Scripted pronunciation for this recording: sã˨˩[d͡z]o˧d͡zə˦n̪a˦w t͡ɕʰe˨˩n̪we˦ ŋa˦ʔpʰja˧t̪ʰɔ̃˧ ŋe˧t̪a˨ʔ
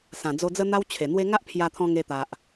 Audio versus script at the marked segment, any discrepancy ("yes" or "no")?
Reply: no